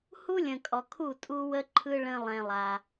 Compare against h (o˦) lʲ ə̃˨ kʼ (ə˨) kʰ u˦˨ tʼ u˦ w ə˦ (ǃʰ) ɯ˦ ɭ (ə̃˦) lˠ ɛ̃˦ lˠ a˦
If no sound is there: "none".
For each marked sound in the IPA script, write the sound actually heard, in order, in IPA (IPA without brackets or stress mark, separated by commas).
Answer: u˦, ɔ˨, ǃʰ, ə̃˦